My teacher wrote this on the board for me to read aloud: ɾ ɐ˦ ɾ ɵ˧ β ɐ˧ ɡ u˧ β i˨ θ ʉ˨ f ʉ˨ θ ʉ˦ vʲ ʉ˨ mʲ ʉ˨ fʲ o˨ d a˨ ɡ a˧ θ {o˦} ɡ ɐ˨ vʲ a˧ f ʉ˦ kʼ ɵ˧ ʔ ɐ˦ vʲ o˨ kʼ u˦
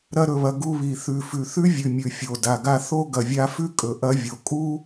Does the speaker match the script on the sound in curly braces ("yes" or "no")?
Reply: yes